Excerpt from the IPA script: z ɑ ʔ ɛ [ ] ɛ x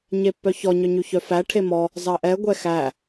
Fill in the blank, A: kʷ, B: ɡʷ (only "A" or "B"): B